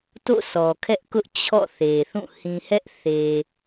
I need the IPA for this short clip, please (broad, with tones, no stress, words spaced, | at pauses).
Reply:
to̰˦˨sɔ˨kʰɛ˦ʔkʊ˦ʔ t͡ɕʰɔ̰˦˨θe˨θũ˦˨ hĩ˨hɛ˦ʔ θe˨